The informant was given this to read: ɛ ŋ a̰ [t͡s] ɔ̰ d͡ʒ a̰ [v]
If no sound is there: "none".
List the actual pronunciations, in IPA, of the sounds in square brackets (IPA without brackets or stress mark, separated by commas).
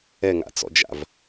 t͡s, v